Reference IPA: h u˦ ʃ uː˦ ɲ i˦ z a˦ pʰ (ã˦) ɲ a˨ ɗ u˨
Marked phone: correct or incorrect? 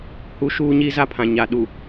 incorrect: ã˨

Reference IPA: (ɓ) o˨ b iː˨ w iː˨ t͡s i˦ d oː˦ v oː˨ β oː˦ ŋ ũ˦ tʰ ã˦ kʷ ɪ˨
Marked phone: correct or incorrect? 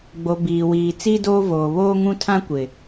incorrect: ɡ͡b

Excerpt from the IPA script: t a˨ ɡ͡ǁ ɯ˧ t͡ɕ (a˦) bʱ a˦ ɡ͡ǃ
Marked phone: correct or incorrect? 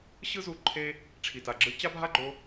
correct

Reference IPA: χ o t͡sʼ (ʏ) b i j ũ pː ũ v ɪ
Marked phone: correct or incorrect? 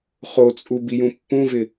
incorrect: u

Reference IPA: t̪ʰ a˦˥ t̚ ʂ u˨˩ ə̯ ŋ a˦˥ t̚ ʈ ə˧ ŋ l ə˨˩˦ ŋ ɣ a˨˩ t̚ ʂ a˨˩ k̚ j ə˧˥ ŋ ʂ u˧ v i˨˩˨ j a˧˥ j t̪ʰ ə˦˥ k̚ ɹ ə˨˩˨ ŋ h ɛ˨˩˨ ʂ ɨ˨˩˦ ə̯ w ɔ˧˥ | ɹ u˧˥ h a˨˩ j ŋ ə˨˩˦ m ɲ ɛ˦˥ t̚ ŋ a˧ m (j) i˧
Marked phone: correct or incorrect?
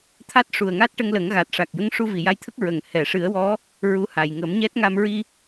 incorrect: ɹ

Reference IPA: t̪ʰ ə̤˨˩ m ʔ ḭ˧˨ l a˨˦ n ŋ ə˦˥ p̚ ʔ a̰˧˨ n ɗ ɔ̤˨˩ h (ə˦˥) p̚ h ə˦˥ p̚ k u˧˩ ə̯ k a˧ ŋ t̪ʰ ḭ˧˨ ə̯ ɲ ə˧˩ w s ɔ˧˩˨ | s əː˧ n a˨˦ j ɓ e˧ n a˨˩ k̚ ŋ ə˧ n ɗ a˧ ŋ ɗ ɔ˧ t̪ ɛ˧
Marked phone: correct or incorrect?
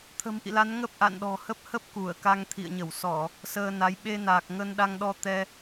correct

